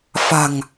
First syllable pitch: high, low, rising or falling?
low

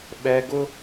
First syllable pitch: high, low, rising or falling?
high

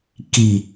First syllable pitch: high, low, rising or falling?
low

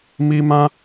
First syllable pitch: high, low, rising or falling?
high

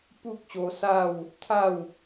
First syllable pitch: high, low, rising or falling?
high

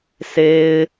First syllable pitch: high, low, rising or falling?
high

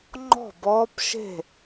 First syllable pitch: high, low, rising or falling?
falling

